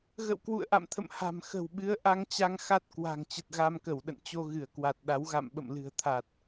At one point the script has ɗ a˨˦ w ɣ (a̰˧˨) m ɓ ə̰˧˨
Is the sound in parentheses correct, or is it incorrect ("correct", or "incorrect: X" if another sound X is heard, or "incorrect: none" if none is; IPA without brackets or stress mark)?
correct